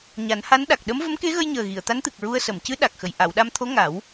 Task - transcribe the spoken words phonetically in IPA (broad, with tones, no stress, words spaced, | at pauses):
ɲa˨˩˦nha˧˥nɗa˨˩k̚ ɗə˧˥m və˧˥mke˧˥ɣə˧jɲəː˨˩ ɣi˨˩˨ə̯t̪a˧˥nt̪ɨ˨˩k̚ ɹu˧ə̯sə˨˩˨m cɨ˧˥ ɗa˨˩k̚xə˨˩j ʔa˨˩˨wɗa˧mt̪ʰo˧˥ ŋa˨˩˦w